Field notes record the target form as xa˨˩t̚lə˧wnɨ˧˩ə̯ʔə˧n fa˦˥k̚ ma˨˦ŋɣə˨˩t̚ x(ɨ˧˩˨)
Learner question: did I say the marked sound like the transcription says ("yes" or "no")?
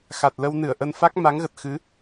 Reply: no